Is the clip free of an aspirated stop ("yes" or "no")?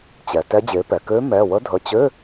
yes